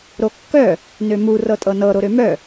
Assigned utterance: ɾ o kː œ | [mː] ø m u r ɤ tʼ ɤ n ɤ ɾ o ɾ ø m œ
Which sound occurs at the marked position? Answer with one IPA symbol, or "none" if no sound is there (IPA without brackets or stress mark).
n